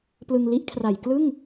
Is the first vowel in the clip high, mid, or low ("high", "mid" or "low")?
high